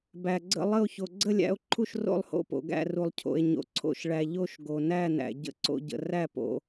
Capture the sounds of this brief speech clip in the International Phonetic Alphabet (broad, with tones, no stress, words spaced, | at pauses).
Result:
bæ˩ɡ͡ǀə̰˥˩lˠə˥˩o̯ ço˩ɡ͡ǀə˥˩lʲæ̰˥˩o̯ ǃʰu˥˩ʃro̰˥˩lˠho̰˥˩po̰˩ ɡæ̰˥˩ru˩lˠcʰo̰˩e̯ɲo̰˩ ǀʰo̰˥˩ʃɭæ˩ ʎo˥˩ʃ ɡo˩næ˥˩næ̰˩ ɟə̰˥˩ǀo̰˥˩ ɟə̰˩ ræ˥˩po̰˩